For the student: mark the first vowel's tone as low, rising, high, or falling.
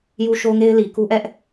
high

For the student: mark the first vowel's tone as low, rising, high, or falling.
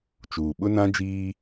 low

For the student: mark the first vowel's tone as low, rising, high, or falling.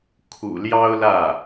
low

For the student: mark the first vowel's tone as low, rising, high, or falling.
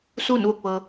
falling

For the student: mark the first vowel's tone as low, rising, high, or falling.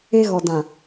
high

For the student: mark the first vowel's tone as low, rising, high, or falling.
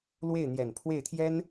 falling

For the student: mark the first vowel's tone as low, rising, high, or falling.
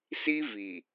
high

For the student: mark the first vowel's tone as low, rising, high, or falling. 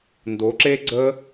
rising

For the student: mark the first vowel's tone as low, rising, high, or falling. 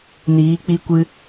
rising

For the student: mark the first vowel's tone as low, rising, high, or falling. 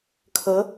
rising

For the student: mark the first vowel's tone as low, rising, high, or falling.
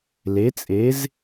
rising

